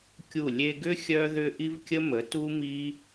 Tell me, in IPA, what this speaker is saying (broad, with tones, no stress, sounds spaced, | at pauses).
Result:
kʲ u˦˨ lʲ e˧ ɡ ʏ˦ xʲ œ˦ ð ʏ˦ ʔ i˦ v kʲ ə˦ m ə˨˦ t u˦ m i˦